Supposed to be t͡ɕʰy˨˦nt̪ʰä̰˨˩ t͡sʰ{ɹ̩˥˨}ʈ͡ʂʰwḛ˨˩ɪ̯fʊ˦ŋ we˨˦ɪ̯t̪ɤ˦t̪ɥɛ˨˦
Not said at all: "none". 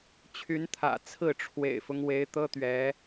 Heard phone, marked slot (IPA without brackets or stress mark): ɹ̩˥˨